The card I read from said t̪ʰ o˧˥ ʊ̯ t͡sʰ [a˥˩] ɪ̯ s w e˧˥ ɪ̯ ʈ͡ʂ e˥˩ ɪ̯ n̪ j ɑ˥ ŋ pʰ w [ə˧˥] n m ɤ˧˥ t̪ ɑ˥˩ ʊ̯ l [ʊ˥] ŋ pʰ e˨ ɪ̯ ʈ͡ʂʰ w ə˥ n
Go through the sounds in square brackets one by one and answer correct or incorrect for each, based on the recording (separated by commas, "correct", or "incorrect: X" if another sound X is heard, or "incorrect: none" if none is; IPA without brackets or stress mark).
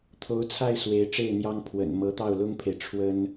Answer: correct, incorrect: ə̰˨˩, correct